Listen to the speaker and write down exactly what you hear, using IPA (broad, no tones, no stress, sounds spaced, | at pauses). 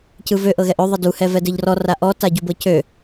c ɯ v ø ʔ ɤ ɣ ɛ ʔ ø ðˤ ə d u h ɛ v ɛ d ɘ ʎ r ɔ r a ʔ ɔ t a ɟ u b ɤ c ø